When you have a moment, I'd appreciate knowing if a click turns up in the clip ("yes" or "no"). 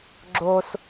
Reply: yes